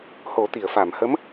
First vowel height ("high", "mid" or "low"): mid